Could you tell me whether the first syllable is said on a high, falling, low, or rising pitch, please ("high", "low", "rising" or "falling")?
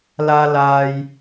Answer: low